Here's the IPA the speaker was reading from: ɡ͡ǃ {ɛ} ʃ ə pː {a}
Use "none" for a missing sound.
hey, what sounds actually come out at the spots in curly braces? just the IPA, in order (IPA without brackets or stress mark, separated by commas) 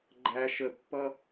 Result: æ, ʌ